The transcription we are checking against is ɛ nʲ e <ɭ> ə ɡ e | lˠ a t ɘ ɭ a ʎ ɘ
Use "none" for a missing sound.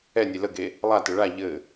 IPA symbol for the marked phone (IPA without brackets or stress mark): l